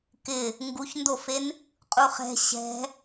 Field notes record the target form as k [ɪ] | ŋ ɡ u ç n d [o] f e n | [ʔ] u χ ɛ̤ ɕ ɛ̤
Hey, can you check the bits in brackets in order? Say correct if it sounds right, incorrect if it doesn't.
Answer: correct, correct, incorrect: qʼ

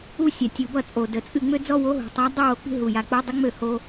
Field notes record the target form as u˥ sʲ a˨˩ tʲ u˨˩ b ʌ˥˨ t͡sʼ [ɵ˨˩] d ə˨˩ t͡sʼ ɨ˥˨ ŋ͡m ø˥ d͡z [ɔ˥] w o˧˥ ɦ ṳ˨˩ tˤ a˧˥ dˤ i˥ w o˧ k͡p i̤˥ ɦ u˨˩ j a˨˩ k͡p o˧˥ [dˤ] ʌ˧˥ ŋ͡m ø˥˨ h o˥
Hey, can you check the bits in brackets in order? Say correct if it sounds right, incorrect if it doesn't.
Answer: incorrect: o˨˩, correct, correct

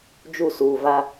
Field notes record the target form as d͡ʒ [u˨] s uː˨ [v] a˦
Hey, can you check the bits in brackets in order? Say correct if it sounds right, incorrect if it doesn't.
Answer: incorrect: u˦˨, correct

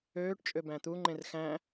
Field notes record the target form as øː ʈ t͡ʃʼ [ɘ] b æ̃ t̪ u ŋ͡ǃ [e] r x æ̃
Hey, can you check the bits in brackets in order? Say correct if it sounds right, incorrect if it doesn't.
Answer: incorrect: ø, incorrect: ẽ

